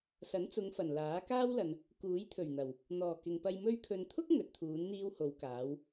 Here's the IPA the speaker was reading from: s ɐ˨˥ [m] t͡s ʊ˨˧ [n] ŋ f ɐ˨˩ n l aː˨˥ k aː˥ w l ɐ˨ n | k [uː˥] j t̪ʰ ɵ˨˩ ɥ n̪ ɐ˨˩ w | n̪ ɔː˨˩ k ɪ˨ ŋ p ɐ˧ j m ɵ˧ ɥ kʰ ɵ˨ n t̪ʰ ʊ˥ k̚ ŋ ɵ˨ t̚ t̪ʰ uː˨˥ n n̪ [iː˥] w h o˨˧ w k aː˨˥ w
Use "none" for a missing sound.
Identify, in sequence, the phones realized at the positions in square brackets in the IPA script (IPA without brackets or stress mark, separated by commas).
n, none, uː˨˥, iː˥